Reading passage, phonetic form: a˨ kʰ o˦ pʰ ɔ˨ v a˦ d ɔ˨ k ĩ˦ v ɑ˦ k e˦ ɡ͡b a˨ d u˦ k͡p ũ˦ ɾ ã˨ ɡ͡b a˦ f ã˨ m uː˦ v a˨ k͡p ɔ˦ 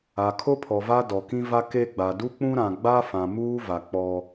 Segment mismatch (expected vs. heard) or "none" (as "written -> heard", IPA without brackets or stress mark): ɑ˦ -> a˦